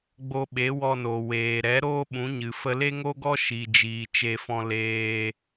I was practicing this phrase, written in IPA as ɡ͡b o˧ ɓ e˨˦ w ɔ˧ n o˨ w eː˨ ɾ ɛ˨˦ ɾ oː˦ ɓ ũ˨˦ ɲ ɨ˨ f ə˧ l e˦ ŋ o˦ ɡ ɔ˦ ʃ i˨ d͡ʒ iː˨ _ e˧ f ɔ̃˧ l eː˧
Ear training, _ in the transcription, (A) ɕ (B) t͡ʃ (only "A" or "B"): B